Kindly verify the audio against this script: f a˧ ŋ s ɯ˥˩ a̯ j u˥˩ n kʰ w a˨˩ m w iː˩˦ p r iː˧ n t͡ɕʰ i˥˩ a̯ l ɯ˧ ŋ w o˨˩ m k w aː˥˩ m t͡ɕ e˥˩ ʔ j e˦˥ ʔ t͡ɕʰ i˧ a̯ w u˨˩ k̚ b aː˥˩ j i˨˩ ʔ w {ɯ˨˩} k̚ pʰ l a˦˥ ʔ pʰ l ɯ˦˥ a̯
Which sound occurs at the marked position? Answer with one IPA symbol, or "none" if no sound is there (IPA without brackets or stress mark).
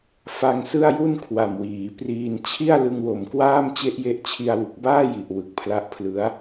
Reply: ɯ˨˩